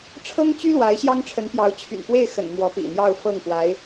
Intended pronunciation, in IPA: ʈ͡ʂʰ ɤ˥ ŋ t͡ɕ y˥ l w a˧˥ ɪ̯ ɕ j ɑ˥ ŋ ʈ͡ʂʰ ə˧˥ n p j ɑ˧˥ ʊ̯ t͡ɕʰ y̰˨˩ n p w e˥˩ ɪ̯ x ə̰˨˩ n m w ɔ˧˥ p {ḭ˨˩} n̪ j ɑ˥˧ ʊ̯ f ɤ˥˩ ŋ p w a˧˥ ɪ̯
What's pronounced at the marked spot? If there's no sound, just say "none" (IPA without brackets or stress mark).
ḭ˨˩